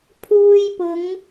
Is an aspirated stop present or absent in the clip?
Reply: present